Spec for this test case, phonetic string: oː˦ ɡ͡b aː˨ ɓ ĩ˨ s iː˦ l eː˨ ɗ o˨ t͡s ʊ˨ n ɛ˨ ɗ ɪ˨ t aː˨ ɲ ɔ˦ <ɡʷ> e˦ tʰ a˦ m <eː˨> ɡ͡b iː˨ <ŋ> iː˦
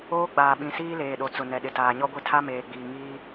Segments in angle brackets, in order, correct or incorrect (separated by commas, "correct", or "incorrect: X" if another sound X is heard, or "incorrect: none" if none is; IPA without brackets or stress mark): correct, correct, correct